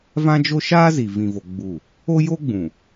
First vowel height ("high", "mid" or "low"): low